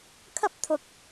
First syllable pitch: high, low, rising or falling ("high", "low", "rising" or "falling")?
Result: high